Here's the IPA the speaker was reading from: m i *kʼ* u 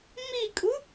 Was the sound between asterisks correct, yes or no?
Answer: yes